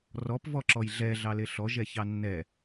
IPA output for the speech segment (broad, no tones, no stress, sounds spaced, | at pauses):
r ɔ p v ɔ ǁ ɔ j ɮ ɛ ɮ ɑ l e ɬ ɔ ʒ ɛ ç ɑ nː ɛ